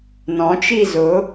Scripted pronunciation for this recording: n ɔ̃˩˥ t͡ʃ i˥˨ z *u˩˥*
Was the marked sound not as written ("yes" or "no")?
yes